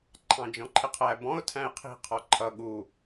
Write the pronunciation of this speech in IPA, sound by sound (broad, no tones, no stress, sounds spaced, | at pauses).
ǃʰ ɑ̃ d͡ʒ ɔ̃ ǃʰ ɪ qʰ æ b ɔ̃ ʊ̯ tʰ æ̃ ɪ̯ qʰ i̤ qʰ ɔ ǃʰ ʌ ɠ u